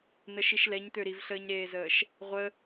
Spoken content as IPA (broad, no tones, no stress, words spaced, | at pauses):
nəʃiʃlɛɲt̪ø ɾivɬəːɲɾeːzəːʃ | ʁʷə